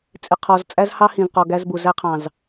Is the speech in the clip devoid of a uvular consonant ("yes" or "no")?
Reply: no